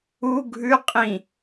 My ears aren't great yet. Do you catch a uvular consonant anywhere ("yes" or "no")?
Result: yes